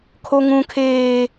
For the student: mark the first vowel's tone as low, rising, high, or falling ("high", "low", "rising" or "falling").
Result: high